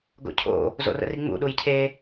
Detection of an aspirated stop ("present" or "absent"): present